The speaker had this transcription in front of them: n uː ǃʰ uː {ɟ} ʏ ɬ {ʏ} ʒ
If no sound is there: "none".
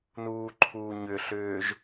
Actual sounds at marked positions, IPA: ɲ, ʏː

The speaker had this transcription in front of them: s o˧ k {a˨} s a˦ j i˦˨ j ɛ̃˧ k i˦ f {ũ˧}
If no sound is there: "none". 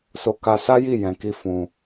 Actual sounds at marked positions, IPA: a˧, ũ˧

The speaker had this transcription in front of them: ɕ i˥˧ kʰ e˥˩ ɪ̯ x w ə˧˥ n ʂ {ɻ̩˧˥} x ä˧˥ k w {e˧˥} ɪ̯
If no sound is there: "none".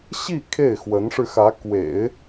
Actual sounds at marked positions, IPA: ɻ̩˧, ḛ˨˩˦

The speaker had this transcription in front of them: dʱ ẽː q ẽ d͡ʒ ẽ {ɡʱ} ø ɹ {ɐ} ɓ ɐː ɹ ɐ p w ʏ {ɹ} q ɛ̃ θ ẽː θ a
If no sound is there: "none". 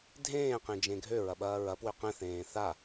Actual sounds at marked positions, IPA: ɡʱ, ɐ, none

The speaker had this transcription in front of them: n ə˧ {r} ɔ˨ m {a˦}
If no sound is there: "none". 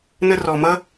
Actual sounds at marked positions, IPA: r, ʌ˦

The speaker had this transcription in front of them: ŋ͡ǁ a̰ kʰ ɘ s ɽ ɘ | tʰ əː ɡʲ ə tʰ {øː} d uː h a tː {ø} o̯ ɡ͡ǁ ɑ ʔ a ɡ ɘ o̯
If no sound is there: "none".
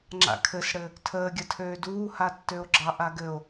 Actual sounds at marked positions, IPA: øː, ø

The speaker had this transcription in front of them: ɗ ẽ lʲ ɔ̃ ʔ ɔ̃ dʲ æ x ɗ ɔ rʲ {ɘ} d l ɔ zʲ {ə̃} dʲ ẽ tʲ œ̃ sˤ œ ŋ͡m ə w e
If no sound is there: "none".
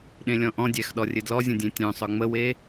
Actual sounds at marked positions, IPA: ɘ, ə̃

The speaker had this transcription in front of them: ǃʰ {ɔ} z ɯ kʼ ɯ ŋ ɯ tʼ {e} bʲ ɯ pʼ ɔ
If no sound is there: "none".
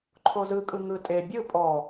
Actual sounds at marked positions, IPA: o, e

